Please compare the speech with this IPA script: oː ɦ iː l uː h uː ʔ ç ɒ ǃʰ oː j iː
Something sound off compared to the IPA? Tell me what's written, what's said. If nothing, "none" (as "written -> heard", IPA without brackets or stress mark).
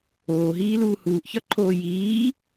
none